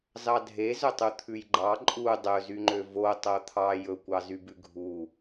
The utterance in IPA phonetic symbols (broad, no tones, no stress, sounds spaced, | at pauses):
z ɑ dʱ e z ɵ tˤ u t̪ʰ ʉ j ɡ͡ǃ ɑ ǃʼ u dˤ ɵ z y ŋ͡ǃ ø v o tˤ o t̪ʰ ɑ j ɵ kʷ ɑ z y b ʉ ɡʱ u